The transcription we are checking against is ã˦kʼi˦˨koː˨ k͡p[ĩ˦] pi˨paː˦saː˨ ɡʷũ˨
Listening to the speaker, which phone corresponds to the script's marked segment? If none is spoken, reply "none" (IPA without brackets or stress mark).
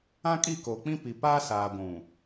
ĩ˦